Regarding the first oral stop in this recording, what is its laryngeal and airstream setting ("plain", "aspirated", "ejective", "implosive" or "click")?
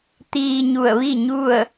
plain